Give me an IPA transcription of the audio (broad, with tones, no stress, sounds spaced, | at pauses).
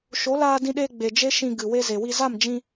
ʃ o˨˦ l aː˧ d ĩ˧ ɗ eː˧ ɡ͡b e˨ d͡ʒ e˦ ʃ ĩ˧ ɡ ɨ˨ w e˧ z e˨ w i˧ z a˦˨ m d͡ʒ ĩ˧